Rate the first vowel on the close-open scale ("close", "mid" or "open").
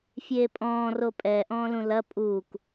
mid